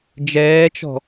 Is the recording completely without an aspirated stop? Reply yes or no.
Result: yes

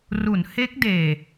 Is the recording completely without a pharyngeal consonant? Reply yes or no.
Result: yes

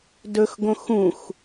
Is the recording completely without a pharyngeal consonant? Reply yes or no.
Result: yes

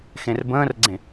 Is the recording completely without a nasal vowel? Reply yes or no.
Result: no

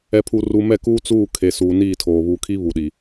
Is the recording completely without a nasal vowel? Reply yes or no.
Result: yes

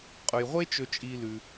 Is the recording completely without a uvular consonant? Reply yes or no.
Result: no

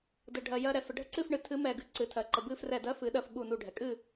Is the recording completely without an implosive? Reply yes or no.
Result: no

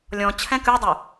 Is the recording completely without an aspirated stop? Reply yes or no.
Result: no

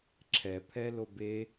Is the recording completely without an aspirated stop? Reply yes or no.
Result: no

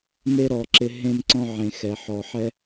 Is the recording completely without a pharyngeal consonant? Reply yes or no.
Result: no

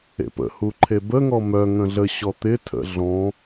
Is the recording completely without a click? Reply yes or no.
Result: no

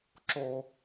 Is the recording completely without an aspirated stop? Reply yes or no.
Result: yes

